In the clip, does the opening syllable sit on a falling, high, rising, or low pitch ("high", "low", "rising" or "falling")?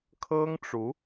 high